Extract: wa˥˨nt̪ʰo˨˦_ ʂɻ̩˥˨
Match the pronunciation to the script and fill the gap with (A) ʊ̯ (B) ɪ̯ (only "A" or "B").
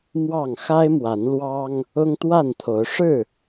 A